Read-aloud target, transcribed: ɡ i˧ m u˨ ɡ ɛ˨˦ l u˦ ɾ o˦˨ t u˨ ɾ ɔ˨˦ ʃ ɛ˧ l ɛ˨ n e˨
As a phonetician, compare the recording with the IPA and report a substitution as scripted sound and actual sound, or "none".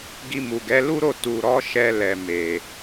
n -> m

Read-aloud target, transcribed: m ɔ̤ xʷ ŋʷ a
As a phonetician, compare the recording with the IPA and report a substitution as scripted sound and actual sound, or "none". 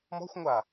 none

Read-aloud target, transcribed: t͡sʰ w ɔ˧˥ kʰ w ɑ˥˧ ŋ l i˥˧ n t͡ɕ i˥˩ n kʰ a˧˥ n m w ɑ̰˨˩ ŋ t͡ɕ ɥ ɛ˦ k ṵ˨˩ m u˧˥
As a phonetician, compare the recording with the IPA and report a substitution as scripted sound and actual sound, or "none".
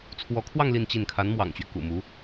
none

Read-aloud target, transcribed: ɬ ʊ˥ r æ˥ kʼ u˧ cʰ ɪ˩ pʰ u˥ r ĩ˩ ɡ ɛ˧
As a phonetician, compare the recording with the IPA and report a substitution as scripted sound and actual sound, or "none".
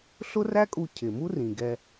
pʰ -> m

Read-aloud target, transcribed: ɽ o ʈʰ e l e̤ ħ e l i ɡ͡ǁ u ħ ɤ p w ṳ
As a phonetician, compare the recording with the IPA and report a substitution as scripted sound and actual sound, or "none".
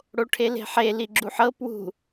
none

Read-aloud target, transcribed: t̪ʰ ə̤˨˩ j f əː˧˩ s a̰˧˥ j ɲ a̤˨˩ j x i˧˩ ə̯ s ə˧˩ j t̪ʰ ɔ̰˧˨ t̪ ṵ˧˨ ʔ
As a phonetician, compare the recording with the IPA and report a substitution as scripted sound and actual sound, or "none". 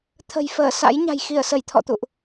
none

